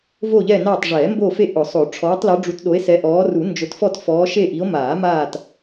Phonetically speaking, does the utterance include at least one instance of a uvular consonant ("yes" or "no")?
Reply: no